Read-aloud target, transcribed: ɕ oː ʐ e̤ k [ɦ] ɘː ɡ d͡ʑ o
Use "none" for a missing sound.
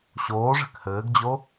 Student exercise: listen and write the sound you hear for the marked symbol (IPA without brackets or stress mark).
h